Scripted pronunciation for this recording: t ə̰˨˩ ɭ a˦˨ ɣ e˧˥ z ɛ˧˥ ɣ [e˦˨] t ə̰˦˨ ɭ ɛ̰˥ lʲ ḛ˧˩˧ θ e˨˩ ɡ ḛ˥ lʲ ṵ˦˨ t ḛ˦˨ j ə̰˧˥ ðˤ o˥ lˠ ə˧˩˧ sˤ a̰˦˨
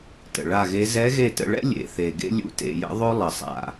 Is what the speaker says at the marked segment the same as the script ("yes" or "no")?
yes